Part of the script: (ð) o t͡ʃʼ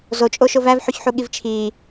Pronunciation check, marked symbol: incorrect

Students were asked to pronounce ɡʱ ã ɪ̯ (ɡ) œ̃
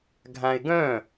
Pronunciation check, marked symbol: correct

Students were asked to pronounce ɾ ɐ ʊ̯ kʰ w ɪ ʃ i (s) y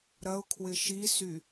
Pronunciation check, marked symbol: correct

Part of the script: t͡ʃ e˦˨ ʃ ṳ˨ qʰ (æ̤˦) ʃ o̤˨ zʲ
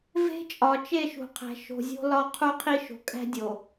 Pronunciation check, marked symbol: incorrect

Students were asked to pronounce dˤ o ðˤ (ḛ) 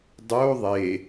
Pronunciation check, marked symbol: incorrect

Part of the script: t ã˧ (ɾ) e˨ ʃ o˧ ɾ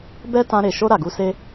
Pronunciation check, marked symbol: correct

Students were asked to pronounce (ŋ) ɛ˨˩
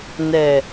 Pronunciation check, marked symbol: incorrect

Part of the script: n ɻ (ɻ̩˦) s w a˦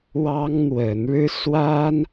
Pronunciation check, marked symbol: correct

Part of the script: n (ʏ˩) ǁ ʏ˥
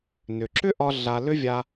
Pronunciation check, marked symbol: correct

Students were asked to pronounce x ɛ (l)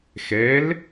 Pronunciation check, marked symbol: correct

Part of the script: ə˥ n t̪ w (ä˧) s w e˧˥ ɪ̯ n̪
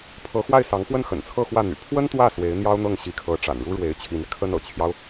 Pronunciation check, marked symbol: incorrect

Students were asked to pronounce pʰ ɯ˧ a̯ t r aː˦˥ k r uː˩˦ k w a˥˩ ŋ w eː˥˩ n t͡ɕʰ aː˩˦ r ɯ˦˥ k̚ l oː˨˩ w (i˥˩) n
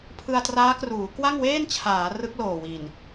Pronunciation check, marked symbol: incorrect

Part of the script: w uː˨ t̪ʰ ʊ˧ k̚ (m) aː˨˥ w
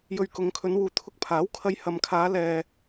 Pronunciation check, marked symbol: incorrect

